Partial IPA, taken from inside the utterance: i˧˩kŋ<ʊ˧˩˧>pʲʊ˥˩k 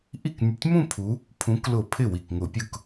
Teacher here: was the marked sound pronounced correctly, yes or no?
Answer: yes